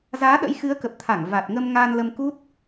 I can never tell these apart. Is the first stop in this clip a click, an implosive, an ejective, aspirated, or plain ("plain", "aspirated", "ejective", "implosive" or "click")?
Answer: implosive